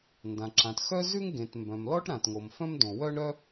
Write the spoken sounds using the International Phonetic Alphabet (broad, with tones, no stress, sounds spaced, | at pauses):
n d ã˩ ǁ ã˩ t x œ˥ z ʉ˥ ŋ ɡ ẽ˩ t m b œ̃˩ m l ɔ˥ ʈ ɾ ã˩ t ŋ o˩ m f œ̃˥ m d õ˩ w œ˥ ɳ ɾ œ˥